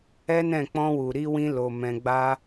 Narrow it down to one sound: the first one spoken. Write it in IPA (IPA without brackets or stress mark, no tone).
ɛ